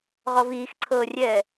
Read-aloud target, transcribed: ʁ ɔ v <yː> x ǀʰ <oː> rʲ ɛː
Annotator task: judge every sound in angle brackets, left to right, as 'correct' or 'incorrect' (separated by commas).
incorrect, incorrect